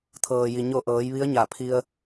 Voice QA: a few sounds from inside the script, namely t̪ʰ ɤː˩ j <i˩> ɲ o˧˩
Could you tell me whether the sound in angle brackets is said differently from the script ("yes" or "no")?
no